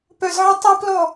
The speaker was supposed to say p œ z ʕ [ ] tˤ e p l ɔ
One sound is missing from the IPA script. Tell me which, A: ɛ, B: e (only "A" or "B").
B